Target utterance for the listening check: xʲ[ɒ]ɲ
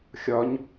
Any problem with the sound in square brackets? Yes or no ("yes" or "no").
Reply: no